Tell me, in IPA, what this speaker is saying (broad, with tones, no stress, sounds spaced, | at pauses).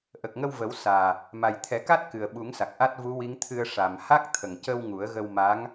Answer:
ʔ ə˨˩ k̚ ŋ ə˧ w v ə˨˩˦ w s aː˨˩ | m a˨˩ j t̪ʰ ɛ˨˩˦ k a˦˥ t̚ k ɨ˨˩ ə̯ ɓ u˨˩˦ ŋ s a˨˩ k̚ ʔ a˦˥ t̚ v u˧˥ w i˧˥ ŋ t̪ʰ ɨ˧ ə̯ ʂ a˨˩ m h a˦˥ k̚ t̪ʰ ə˨˩ ŋ c ə˧ w ŋ u˨˩˦ ə̯ ɣ ə˧ w m a˧˥ ŋ